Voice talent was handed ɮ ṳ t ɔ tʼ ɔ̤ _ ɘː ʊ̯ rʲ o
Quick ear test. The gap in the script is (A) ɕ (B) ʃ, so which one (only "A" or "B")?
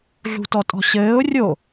A